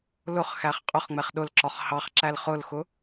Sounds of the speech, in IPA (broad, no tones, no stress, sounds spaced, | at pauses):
l ʊ χ x æ χ qʼ ʊ χ ŋ͡m ɛ χ ɗ ʊ l ǁ ɒ χ h ɑ χ ǁ æ l χ ʊ l x ʊ